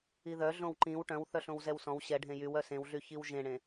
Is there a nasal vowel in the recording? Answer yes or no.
yes